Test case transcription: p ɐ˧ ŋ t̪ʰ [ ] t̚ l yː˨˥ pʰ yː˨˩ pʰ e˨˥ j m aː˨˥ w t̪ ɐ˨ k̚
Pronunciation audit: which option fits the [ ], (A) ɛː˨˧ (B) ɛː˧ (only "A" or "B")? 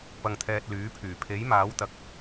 B